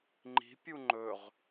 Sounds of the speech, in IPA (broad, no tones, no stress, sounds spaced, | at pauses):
ŋ͡ǃ i̤ pʲ u ŋ͡ǃ ɵ ʁ